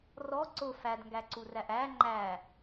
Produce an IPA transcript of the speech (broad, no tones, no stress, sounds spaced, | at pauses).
r ɔ ǀ ʊ f æ d ŋ ɡ æ ǀ u r æ ʔ æ ŋ͡ǃ æ